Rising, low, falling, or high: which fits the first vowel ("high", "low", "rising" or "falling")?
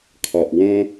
low